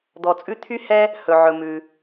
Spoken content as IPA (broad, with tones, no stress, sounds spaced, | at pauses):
d̪ ɔ˧ t͡sʼ ʉ˥ t̪ʰ y˥ h ɛ˥ | h ɵ˧ ʕ ɵ˧ m ʉ˧